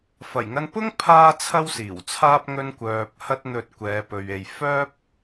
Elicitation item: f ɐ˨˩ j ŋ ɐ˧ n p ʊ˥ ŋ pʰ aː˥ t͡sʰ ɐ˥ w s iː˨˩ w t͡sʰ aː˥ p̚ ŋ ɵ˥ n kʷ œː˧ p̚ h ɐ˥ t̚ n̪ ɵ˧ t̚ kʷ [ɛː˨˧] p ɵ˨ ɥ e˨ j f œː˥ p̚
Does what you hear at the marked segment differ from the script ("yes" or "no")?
no